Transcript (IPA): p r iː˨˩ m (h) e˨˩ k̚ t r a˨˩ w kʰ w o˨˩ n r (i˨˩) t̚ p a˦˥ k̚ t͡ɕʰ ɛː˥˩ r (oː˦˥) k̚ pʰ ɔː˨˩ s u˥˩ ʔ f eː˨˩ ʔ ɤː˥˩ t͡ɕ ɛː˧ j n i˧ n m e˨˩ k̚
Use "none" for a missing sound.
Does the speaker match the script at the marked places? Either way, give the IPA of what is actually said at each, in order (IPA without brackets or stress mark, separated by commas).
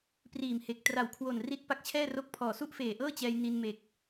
h, i˥˩, o˦˥